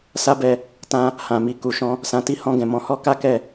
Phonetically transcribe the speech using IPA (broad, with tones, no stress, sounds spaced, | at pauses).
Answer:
s a˦ b ɛ˧ | t ã˧ | h ã˨ m i˨ k u˨ ʃ ɔ̃˧ | s ã˨ t i˧ h ɔ̃˧ ɡ ɛ̃˨ m ɔ̃˧ h ɔ˦ k a˦ k ɛ˦˨